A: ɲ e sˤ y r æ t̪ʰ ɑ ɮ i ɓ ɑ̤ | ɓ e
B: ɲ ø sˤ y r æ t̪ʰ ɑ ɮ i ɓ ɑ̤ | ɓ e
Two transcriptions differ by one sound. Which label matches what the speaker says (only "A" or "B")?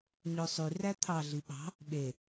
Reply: B